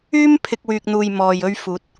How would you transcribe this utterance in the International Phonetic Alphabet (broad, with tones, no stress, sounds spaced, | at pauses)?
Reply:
yː˥ m pʰ ɪ˧ k̚ w yː˨ k̚ n̪ uː˨ j m ɔː˨ j ɵ˧ ɥ f uː˨˥ t̚